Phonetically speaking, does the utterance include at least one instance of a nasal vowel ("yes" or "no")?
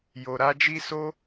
no